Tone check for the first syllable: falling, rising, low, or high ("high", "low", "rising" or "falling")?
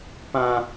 high